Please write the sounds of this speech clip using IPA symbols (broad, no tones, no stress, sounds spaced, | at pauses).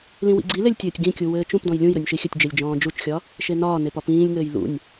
l ĩ w ḭ ɡ͡ǀ i l e lʲ tʲ ɘː tʲ ɡ ĩ kʲ u w ɘː t͡ʃ ũ p d ɔ̃ j lʲ ũ j ɾ ɵ nʲ ʃ i xʲ ɘ tʲ d͡ʒ e lʲ d͡ʒ ɔ̃ː d͡ʒ u t͡ʃ xʲ ɒ | ʃ e n ɒː n e p ɒ p ĩː lʲ ŋ ɘː j l ṵ nʲ